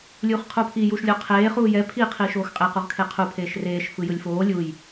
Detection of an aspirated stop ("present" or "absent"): present